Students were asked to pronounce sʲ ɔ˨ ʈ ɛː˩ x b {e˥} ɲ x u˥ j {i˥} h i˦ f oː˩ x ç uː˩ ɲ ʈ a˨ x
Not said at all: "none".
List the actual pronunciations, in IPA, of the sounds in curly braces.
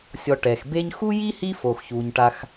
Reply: e˦, i˥

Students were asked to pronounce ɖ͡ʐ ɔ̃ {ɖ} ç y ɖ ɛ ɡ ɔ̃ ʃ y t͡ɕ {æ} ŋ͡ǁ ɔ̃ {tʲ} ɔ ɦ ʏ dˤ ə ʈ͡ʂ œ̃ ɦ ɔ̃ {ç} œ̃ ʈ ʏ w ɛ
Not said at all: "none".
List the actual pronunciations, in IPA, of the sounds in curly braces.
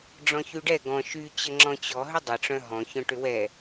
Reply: none, ə, t͡ɕ, ç

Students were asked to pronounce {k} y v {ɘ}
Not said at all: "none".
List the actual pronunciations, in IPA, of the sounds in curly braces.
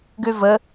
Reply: ɡ, ɘ

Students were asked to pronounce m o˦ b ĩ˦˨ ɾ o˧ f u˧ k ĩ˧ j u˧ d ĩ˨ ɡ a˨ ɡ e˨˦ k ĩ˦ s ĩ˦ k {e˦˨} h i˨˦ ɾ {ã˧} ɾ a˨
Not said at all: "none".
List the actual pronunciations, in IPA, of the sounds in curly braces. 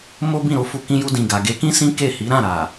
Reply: e˦˨, ã˦˨

